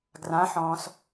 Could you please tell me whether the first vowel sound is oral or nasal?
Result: nasal